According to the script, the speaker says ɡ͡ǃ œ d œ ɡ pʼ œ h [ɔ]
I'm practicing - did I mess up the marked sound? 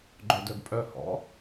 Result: yes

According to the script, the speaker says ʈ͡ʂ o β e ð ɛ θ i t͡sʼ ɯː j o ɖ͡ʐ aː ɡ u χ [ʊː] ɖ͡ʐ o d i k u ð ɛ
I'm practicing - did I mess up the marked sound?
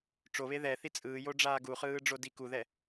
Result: yes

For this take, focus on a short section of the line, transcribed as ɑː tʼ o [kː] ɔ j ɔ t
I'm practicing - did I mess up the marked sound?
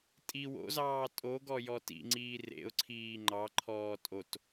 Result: yes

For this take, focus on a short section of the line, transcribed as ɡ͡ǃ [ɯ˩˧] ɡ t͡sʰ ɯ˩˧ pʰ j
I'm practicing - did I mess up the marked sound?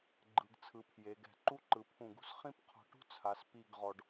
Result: no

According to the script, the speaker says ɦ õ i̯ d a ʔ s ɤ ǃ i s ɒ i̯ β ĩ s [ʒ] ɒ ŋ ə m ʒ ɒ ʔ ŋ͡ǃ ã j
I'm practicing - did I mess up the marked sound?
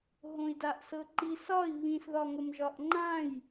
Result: yes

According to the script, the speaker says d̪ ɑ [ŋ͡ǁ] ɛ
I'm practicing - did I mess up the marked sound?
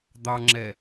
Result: no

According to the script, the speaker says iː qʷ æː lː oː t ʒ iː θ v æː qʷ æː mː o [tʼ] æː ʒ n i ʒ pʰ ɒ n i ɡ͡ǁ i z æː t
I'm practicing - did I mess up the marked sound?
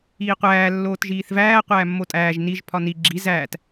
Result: no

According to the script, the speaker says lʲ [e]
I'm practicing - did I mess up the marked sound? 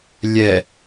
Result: yes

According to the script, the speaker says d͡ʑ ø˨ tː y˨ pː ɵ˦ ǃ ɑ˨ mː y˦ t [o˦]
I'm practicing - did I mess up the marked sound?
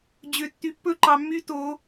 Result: yes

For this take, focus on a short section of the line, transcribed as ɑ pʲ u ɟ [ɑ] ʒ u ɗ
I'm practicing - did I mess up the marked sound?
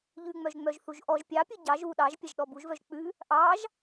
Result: no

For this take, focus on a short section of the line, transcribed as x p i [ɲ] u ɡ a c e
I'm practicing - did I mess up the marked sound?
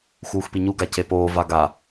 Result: no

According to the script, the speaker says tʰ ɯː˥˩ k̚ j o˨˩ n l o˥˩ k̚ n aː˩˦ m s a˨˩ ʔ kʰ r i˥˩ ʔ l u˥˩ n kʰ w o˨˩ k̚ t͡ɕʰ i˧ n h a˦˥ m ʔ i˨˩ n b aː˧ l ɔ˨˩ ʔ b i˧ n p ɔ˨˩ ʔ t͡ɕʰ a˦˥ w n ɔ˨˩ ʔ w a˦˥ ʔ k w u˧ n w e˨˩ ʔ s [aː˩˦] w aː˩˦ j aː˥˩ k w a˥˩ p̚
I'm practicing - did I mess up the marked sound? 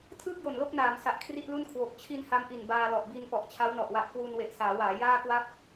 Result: no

